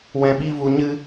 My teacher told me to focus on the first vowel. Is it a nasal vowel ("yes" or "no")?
yes